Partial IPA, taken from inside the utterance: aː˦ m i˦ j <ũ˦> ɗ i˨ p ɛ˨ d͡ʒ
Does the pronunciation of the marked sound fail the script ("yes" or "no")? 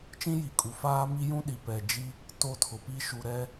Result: no